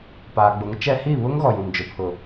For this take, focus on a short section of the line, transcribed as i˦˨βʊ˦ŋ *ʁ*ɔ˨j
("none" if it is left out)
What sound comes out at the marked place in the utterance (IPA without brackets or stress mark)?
ɣ